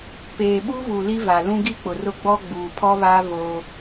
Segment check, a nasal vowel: present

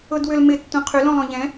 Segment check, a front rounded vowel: present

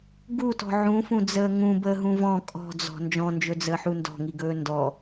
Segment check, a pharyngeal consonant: present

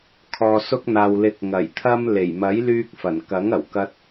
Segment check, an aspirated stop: present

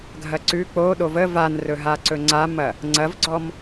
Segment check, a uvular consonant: absent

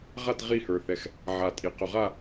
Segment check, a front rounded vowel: absent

